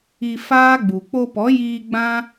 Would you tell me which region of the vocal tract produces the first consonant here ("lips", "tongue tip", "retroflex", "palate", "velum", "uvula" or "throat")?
lips